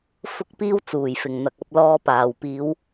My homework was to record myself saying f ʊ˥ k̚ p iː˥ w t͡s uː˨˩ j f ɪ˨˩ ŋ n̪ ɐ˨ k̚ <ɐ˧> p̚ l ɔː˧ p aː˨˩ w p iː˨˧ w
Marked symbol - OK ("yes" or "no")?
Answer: yes